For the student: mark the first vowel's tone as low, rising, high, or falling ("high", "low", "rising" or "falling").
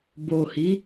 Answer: low